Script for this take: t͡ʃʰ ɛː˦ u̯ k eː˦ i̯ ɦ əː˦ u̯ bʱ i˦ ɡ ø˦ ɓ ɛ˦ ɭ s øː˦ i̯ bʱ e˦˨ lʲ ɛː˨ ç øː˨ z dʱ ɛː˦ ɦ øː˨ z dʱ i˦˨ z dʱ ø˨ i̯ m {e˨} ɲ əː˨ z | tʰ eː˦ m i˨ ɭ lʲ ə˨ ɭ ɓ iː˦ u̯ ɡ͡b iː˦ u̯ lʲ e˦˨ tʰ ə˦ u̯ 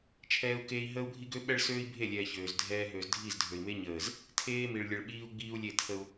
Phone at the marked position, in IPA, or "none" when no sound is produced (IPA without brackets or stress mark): e˦